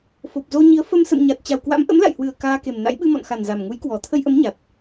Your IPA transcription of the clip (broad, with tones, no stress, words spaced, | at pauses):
fo˨˩p̚zo˧ɲi˨˦ə̯ fə˧m sə̰˧˨mɲa˨˩t̚ t͡ɕa˨˩wkwa̰˧˥mʔə̰˧˥m la̰˧˨jhwɨ˨˩ə̯ kaː˧ke˨˩mna̰˧˥j ɓɨ˧mɔ̰˧˨nxa˨˩n za˨˩mŋu˨˦jkwɔ˨˩ t̪ʰə˧jʔə˨˦mɲa˨˩t̚